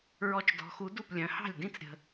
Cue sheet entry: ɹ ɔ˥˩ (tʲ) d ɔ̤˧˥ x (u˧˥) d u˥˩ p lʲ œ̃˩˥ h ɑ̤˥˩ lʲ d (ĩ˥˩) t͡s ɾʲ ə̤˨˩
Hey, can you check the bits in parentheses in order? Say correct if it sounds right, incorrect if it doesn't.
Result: incorrect: t͡ʃ, correct, correct

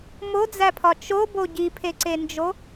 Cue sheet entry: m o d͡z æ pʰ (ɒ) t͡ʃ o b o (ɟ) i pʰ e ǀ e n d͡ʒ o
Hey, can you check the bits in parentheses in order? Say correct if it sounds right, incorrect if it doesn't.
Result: correct, correct

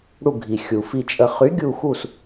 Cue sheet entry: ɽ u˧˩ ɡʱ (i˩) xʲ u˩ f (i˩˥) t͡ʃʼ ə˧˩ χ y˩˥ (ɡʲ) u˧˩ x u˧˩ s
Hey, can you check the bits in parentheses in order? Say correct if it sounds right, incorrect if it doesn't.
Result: correct, incorrect: i˧˩, correct

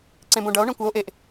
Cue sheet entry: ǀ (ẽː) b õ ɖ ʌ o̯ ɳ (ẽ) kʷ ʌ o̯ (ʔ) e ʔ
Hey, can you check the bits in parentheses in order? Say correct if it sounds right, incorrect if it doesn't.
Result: incorrect: ẽ, correct, correct

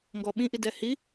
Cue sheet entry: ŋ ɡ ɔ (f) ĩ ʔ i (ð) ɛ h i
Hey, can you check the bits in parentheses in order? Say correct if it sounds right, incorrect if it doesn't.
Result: incorrect: ɓ, incorrect: d

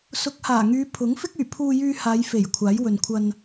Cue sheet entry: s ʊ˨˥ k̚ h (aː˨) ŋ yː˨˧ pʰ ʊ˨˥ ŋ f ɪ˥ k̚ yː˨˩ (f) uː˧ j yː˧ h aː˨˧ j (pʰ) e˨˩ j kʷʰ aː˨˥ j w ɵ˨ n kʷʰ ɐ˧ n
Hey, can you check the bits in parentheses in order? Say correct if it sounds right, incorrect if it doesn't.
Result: incorrect: aː˨˩, incorrect: pʰ, incorrect: f

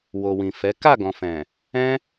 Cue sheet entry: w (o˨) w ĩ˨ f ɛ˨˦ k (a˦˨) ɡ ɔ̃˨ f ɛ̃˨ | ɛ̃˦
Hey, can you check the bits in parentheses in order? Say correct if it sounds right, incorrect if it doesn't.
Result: correct, correct

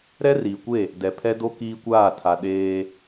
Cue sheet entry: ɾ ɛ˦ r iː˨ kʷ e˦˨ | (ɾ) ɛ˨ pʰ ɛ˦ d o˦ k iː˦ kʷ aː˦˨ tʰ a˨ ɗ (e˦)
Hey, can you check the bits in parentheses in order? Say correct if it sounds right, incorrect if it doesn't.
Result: incorrect: d, incorrect: eː˦

